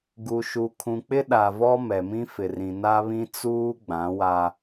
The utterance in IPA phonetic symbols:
ɡ u˨ ʃ u˨ kʰ ũ˨ k͡p ɪ˦ ɗ a˨ v ɔ˦ m ɛ˨ m ĩ˦ f ɪ˨ r ĩ˨ n a˦ β ĩ˦ t͡s uː˦ ɡ͡b ã˨˦ w a˦

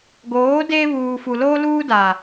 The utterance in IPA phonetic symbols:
ɡ oː˨˦ d eː˦ β uː˨ f u˨ l oː˦ l uː˦ d a˨

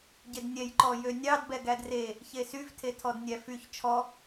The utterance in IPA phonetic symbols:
ɟ e d nʲ ɛ j ǃ ɔ j ø nʲ ɑ d b ɛ ɡ æ d r e | ç e s y v tʰ e tʰ ɔ d nʲ æ f y ç t͡ʃʰ ɔ

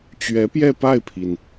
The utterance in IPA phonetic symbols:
t͡ɕ ɥ ɛ˧˥ p j ɛ˥˧ p a˥˩ ɪ̯ pʰ i˩ n

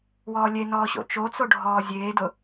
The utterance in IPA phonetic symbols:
w ɔː lʲ e n ɔː ɕ o̰ t͡ʃ o t͡s o ɖʱ ɔː zʲ eː d ʊ

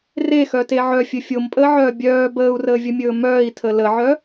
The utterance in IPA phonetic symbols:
r e x œ t e ʕ œ fʲ ɵ fʲ o m pʼ əː ʕ œː bʲ œː b əː u̯ r əː vʲ ə mʲ ɵː m œː i̯ tʰ ə l ə ʕ œ

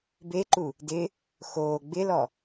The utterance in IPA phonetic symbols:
b e ǃ u | d ɪ | x oː ɡ͡b ɪ l ɔ

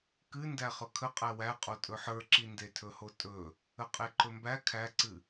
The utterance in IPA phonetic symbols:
k ɨ n d æ χ ɵ kʰ ə qʼ æ w æ qʼ o tʼ ɵ ħ ə˞ ǁ i n d e tʰ ɵ h o tʼ ɵ | ə qʼ e ǃ ɵ m b æ kʰ æ ǀ ɨ

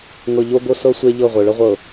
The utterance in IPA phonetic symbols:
ŋ ɤ˨ ʎ o˦ ɡ o˦ s ɤ˦ sʷ e˦ ʎ ɤ˦˨ ʁʷ ɤ˨ ɭ ɤ˦ ʁʷ ɤ˨

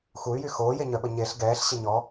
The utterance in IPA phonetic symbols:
x u y̯ j y x oː j e ɲ œ ɓ ə ɲ e ɬ ɡ ɛː ɬ ɕ ə ɲ ɔ

